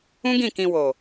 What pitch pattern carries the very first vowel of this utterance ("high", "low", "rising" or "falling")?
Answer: high